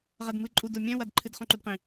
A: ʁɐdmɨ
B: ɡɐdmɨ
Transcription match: A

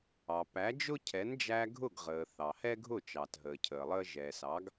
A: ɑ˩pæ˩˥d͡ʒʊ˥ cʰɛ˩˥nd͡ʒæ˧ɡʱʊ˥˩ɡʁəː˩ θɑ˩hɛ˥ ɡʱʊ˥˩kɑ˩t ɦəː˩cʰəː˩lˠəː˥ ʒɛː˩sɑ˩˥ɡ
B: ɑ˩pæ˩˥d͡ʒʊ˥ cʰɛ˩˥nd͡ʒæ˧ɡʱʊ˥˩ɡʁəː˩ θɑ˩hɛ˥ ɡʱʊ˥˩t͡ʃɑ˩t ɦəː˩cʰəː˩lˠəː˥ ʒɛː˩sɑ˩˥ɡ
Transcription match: B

